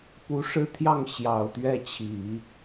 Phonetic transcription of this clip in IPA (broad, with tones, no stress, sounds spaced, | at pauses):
p u˧˥ ʂ ɻ̩˥˧ t̪ʰ j ɑ˥˩ ŋ ɕ j ɑ˨˩ ʊ̯ t̪ ɥ ɛ˥˩ t͡ɕʰ i˨˩˦